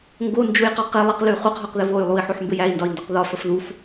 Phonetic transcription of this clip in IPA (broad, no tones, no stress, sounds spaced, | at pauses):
ŋ ɡ o n d͡ʒ u j q ɔ q e lˠ ə q l ʉ χ u q ɦ ɔ q ð ɘ v o y̯ lˠ u i̯ ħ o ħ m b ɘ j æ i̯ n d ɒ i̯ n d ɔ q ð ɒ f ə f ð u f